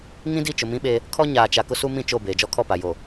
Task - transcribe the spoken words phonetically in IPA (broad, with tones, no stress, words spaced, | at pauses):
ŋĩ˦di˦˨t͡ʃʊ˨ mĩ˦ɓe˦ | kʰɔ˦ɲaː˨t͡ʃa˨ kʊ˦su˦ mĩ˦˨t͡ʃo˦˨ beː˨d͡ʒɔ˦kʰɔ˦˨pa˨ jo˨